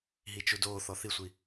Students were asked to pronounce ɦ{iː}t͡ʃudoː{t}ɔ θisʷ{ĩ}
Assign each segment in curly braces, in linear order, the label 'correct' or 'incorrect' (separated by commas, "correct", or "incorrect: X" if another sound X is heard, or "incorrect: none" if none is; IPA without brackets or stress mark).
incorrect: i, incorrect: θ, incorrect: i